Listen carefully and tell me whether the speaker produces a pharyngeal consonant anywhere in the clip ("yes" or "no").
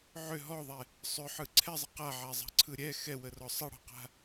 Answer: yes